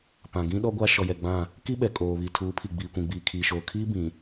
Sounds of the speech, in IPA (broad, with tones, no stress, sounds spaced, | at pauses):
p ã˨ ɡ ĩ˦ ɗ ɔ˦ ɡʷ a˦ ʃ ɔ˨ j ɛ˨ ɡ͡b ã˦˨ | k i˦ ɓ ɛ˨ kʼ oː˨ β i˨ tʰ uː˨˦ pʰ i˨ ɡ͡b iː˨ kʷ ĩ˨ ɡ͡b iː˨ kʰ iː˨ ʃ oː˨ kʰ iː˦ b ĩ˨